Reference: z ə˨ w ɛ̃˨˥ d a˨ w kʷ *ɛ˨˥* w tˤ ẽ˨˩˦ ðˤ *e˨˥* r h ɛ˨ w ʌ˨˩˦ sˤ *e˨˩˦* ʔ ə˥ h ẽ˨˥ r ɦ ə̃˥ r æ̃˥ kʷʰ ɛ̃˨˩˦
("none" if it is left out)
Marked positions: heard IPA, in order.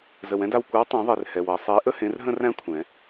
ə˨˥, e˨, e˨˥

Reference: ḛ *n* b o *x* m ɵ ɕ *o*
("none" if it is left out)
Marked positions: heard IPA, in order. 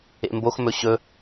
m, x, ɵ

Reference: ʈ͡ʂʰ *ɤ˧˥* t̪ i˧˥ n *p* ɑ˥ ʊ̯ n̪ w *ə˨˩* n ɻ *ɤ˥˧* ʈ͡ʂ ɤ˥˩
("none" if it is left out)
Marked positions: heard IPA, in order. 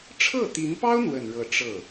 ɤ˥˩, p, ə˨˩, ɤ˥˧

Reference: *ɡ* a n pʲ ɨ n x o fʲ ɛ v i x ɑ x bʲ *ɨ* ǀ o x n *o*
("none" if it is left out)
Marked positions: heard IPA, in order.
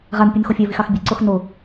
ʁ, ɨ, o

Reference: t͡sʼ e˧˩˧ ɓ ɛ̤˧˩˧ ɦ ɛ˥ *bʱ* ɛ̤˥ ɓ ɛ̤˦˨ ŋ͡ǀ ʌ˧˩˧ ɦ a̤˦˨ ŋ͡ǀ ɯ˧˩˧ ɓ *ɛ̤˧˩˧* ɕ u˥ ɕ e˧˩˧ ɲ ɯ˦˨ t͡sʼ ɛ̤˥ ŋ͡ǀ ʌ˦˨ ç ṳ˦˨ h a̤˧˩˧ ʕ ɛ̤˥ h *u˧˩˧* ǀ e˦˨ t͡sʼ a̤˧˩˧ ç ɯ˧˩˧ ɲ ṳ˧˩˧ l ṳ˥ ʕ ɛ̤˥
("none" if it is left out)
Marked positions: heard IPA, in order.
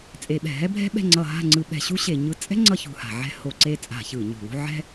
bʱ, ɛ̤˧˩˧, o˧˩˧

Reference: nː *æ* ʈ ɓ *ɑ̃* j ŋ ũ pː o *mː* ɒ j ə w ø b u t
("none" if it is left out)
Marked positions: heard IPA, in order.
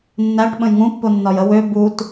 æ, ə̃, nː

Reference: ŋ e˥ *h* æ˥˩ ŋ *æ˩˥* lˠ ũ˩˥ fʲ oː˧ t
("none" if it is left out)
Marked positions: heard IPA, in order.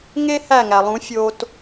h, æ˩

